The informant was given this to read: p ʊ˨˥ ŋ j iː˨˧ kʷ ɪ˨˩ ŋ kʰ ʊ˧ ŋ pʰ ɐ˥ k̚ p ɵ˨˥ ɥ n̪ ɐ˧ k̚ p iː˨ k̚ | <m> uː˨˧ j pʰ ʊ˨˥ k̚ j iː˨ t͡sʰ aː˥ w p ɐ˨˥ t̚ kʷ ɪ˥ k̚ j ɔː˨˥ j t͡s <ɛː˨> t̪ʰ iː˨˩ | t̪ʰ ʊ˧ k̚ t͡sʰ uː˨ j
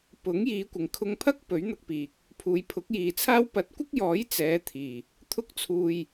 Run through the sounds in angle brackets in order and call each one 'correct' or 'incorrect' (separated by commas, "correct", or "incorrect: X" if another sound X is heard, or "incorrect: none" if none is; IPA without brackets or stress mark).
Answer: incorrect: pʰ, incorrect: ɛː˨˧